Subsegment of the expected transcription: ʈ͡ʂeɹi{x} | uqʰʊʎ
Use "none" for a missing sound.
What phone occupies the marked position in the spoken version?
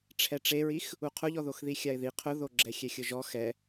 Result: x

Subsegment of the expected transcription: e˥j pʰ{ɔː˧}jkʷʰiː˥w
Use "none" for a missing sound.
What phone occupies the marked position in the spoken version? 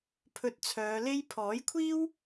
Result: ɔː˨˥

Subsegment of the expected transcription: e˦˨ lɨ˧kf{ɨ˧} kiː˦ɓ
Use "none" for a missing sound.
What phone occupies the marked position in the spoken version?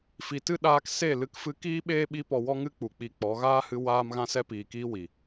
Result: ɨ˧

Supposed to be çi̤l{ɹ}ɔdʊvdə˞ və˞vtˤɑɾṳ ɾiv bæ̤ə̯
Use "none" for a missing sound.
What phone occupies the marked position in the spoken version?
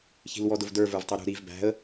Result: w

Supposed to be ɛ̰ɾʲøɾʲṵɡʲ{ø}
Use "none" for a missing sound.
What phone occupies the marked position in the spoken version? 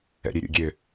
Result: ø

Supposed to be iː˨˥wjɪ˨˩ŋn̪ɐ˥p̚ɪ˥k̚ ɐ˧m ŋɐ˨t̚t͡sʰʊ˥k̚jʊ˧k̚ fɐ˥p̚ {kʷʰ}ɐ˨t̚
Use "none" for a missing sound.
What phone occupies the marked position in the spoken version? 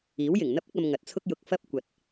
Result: kʷ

